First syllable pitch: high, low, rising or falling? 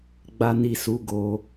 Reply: high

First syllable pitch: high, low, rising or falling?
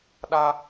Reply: high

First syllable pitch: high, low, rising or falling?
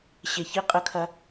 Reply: low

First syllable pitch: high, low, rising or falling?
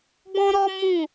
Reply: high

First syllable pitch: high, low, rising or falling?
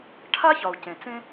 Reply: high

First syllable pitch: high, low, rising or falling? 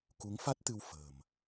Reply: rising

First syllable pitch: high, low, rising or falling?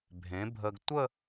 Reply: rising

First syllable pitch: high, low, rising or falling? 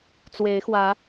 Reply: rising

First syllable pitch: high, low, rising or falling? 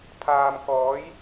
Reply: low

